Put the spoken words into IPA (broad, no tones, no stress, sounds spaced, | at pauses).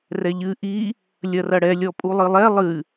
r ɛ ʎ ɨ ʔ i | lʲ ɐ r ɐ ɽ ɛ lʲ ɔ pʼ u lˠ ɨ lˠ ɛ lˠ ɨ